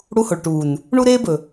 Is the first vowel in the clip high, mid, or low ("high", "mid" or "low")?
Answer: high